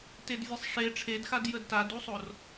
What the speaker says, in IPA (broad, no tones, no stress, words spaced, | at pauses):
tedvʲesˤʂe ʈ͡ʂʰedxad jədtadusˤor